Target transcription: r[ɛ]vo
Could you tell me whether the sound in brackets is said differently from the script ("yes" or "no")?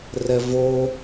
no